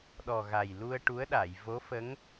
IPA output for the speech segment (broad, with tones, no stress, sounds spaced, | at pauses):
ɗ ɔ˨˩ ɣ a˨˩ j l u˧ ə̯ ʈ u˧˥ ə̯ ɗ a˨˩˨ j v o˧˥ f ə˧˥ ŋ